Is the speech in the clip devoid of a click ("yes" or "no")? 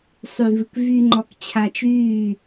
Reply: no